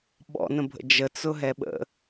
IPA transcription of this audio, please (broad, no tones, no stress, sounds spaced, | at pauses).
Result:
ɓ ɔ̰ n ə̃ bʱ ə̰ d͡ʒ ə t͡s ʊ ɦ ɛ ɓ ə̰